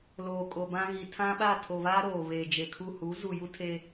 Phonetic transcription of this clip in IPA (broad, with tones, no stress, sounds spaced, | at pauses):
l oː˨ kʼ o˨ b ã˦ ɣ i˨ tʰ ã˦ ɓ a˦˨ tʰ o˨ β aː˦ ɾ oː˨ β eː˨ d͡ʒ e˨ kʰ u˦˨ h u˨˦ z u˨ j u˦ tʰ e˦